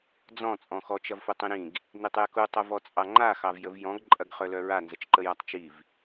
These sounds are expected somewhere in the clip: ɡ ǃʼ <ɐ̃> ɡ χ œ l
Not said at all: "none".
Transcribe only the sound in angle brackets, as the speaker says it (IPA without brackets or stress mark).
ɐ